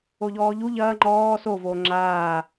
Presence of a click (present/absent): present